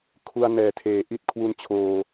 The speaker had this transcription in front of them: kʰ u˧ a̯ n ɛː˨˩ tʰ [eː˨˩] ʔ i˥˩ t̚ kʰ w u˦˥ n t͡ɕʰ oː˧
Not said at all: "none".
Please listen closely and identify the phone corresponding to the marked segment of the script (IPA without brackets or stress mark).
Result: eː˨˩